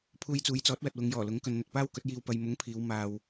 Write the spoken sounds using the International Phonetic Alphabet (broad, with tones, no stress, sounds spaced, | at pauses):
pʰ uː˧ j t͡s uː˨˧ j t͡s ɔː˨˥ t̚ w ɐ˨ t̚ w ʊ˨˧ ŋ j ɔː˨˩ l ʊ˨˥ ŋ k ɵ˧ n n̪ ɵ˧ t̚ p aː˥ w k ɵ˨˥ t̚ j iː˧ w p ɐ˨ j m ʊ˨˥ ŋ pʰ iː˨˧ w m aː˧ w